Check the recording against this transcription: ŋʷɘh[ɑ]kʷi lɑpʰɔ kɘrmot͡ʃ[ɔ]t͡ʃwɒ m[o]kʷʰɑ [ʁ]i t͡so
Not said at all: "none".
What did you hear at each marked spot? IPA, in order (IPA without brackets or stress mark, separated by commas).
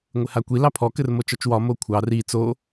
a, ɔ, o, r